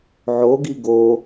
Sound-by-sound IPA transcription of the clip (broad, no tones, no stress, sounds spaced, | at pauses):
ʕ o ɡ i ɡ o